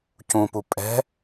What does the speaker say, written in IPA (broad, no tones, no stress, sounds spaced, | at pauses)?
c ũ p u pʼ ɛ̤